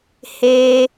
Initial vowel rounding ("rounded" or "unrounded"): unrounded